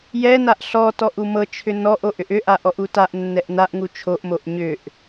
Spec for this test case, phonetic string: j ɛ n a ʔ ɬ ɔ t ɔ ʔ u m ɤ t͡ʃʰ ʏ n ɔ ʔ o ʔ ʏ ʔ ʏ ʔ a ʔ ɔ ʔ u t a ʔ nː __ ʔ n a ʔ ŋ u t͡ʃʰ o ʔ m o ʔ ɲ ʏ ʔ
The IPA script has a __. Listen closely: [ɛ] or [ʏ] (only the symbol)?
ɛ